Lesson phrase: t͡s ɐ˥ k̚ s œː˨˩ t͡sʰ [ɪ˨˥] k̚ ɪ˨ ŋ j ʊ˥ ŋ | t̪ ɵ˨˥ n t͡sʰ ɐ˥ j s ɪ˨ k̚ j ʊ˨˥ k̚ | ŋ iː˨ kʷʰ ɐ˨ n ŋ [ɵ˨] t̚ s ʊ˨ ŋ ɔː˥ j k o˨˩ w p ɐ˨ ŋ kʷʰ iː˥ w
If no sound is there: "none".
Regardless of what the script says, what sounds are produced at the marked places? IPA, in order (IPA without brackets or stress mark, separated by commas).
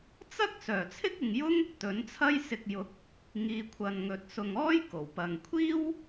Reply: ɪ˥, ɵ˨